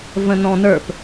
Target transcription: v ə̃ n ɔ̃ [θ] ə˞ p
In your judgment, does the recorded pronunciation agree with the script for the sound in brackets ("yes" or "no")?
no